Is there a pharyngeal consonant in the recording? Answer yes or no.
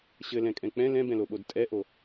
no